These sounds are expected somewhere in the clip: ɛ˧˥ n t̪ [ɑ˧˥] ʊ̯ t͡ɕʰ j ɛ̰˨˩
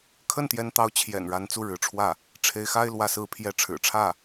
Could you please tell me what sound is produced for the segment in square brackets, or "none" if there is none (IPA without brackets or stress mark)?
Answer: ɑ˧˥